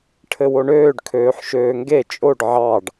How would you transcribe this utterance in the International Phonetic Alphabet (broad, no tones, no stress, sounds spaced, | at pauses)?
ʈʰ ɘ w o ɳ øː ɖ kʰ øː ħ ʃ øː ŋ ɡ e t͡ʃʼ o ɖ ʕ ɑ ɖ